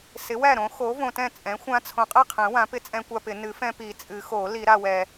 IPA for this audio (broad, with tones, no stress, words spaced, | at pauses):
sɪ˩˥wæ˥˩ɾõ˩˥ xo˩˥võ˨tɛ̃˥˩ t͡sʼɛ̃˩˥xʷã˦ t͡sʰõ˨qʼɛ˥˩qʰɛ̃˨˩˦ wã˩˥ pɪ˦t͡sʼɛ̃˦kʷa˦pɪ˨˩˦ nɨ˩˥fɛ̃˦pi˨˩˦ t͡sʼɨ˨˩˦xo˨˩˦ li˨˩˦ɾa˨wɛ˨